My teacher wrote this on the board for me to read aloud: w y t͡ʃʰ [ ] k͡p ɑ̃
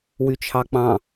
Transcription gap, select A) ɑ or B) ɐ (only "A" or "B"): A